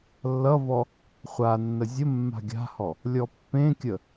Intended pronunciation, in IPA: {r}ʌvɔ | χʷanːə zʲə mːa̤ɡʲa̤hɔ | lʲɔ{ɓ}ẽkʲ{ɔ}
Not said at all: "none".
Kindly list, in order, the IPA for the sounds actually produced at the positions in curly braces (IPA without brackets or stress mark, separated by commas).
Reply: lː, pː, ə